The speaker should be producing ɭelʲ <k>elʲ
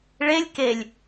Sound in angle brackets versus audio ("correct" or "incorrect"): correct